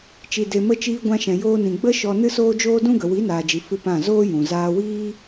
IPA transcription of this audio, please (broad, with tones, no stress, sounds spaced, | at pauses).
t͡ʃ i˨ d e˨ m ə˧ t͡ʃ iː˧ ɡʷ ã˧ ʃ ɛ̃˨ j oː˧ n ĩ˨ ɡ͡b ə˦ ʃ ɔ˧ n ɨ˦ s oː˦ d͡ʒ oː˦ d ũ˦ ɡ ə˨ w i˨˦ n aː˨ d͡ʒ i˨ f ɨ˧ p ã˦˨ z oː˦ j ũ˨ z aː˧ w iː˦